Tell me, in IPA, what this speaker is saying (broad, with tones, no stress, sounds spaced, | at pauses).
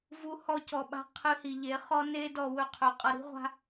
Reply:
v u˧ h ɔ˧ c ɔ˨ ɓ a̤˧ qʰ ɨ˧ h i˨ ʎ e˨˦ χ ɔ˦ n e˧ d ɔ˨ w ɵ˧ qʰ ɵ˨ qʼ ʌ˧ ɾ i̤˦ ʁʷ a̤˦